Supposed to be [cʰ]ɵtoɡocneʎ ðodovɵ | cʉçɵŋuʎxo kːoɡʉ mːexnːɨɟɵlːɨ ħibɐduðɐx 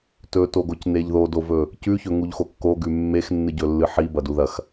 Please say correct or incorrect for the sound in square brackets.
incorrect